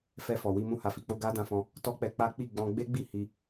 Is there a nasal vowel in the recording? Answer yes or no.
yes